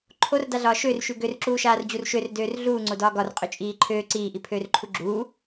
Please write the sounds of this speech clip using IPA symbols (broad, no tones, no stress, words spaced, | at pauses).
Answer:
ǃʰordaɮɒː ʃørʃʉ ɡørǁuːʃaːrd͡ʑur ʃørdøːr ɮuːŋ͡ǀodɒː ɡɒrqʼøt͡ʃʼiː ǃʰøː ǀiːʔipʰøːrǃʰu ɡ͡ǁuː